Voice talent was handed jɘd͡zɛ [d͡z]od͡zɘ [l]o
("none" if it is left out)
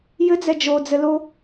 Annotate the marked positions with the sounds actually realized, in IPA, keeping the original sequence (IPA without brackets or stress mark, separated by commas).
d͡ʒ, l